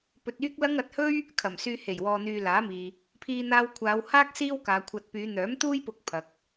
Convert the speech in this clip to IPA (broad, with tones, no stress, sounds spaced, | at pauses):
p ɵ˧ t̚ yː˥ k̚ l ɐ˥ ŋ ɐ˨˥ t̚ h ɵ˥ ɥ | kʰ ɐ˨˩ m s yː˧ h e˨˩ j w ɔː˧ n̪ yː˧ l aː˨˥ m iː˨ | pʰ iː˧ n̪ aː˧ w kʷʰ aː˨˧ w h aː˥ k̚ s iː˥ w k aː˨˧ kʷʰ ɐ˧ t̚ p yː˨˧ n̪ œː˨˥ m t̪ uː˥ j p ʊ˧ k̚ pʰ ɐ˨ k̚